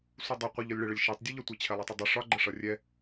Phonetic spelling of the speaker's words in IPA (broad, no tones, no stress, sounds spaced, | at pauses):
sʷ ɨ dˤ ʌ qʷ ə ʎ ɒ lʲ ɭ ɨ ɭ ə lʲ ʃ ɛ tˤ dʲ ʌ ʎ ʌ tʷ ɛ t͡ɕʰ ɛ lˠ i tˤ ɨ dˤ ɨ ʂ ɒ ɡ͡ǃ ə ʂ ʌ rʲ ɛ